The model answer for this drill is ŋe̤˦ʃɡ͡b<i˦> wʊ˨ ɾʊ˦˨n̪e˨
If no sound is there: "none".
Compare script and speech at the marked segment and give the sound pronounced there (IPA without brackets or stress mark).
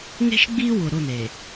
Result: i˦